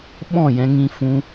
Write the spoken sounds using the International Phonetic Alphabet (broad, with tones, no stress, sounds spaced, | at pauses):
ɓ ɔ̃˦˨ j ɛ̃˧ ŋ ĩ˧ f ũ˧